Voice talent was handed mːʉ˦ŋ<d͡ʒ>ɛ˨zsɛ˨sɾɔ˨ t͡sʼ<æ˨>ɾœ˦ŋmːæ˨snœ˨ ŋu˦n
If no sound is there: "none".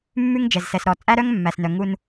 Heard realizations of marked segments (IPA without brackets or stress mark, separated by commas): d͡ʒ, æ˦